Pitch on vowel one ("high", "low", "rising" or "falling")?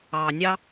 low